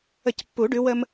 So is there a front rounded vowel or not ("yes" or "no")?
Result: no